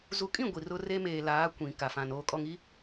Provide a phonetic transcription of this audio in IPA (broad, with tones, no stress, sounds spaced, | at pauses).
z u˨ kʼ ĩ˦˨ ɡʷ i˨ r ʊ˦ r e˦ m eː˨ l aː˨˦ kʷ ĩ˨ k a˨ f ã˨ n oː˨ kʼ ɔ˨ ŋ i˦